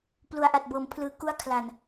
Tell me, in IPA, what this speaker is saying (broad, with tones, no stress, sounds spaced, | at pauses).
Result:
p l u˩˦ a̯ ʔ a˨˩ t̚ b ɤː˩˦ m pʰ l ɯː˧ k u˦˥ a̯ kʰ l a˨˩ n